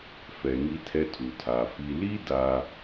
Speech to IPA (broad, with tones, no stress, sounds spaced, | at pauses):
f ɛ˨ ŋ i˦ tʰ ɛ˦ tʰ u˨ tʰ a˨ f i˨ l i˦ d a˦